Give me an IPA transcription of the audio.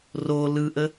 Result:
ro lɯʔə

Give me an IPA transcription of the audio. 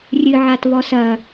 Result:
rʲɨʕat βɔsɐ

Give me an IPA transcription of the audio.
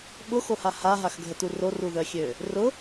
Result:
ɓʊxoha haɦaxɡʱətu roruðœxʲø | rʊ

